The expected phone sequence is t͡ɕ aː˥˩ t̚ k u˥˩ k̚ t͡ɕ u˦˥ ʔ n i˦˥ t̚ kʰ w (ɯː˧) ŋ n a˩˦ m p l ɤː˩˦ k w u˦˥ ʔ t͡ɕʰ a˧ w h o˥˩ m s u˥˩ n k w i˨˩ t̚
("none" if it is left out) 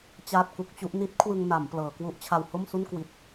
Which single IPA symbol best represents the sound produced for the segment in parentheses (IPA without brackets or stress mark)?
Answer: ɯ˧